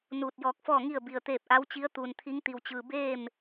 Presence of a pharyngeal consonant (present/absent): absent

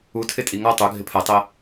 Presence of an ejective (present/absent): present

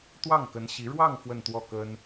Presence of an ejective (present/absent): absent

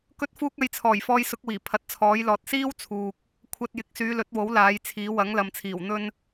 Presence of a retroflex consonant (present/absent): absent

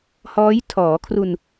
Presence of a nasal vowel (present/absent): absent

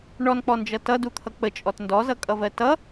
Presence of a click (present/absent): absent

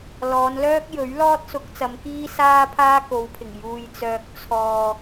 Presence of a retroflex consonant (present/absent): absent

